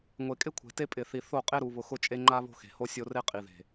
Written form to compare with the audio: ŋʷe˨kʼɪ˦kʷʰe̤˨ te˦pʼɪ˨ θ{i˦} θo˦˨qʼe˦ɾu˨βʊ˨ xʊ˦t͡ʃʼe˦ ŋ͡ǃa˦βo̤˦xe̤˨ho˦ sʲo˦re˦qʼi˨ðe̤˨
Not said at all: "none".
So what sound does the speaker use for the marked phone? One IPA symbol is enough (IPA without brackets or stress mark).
i˨